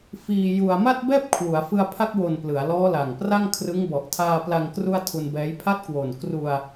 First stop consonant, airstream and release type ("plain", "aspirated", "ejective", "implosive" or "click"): plain